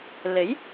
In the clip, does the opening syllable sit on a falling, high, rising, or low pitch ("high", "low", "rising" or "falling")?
rising